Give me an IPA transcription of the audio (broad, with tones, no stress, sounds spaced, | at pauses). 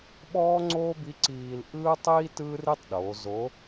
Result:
ɓ ɔː˥ ŋ͡ǀ oː˥ b i˧˥ ǀ iː˧ l ʔ ɯː˥ tˤ iː˥ t ɯː˥ r i˥ tˤ ɗ oː˩˧ z o˧˥